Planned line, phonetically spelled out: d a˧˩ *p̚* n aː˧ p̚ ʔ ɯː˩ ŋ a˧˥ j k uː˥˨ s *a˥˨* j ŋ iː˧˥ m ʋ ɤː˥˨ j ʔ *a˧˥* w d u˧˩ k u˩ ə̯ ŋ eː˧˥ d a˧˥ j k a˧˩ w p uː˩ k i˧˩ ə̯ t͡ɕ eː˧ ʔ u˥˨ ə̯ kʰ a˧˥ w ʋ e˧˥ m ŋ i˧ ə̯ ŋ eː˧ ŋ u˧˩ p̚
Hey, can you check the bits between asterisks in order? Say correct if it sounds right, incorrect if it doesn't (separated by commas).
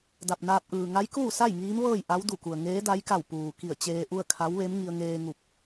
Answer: correct, correct, correct